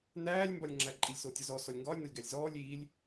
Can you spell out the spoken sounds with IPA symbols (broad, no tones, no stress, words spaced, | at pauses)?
næːlʲmbɒlʲŋ͡ǁæ ǃʼilʲsotʲɒzɔ sɔlʲŋɡɒːlʲnɒlʲ ɡælʲzɔːlʲ iːlʲ